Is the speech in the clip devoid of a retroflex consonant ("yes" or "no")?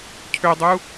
yes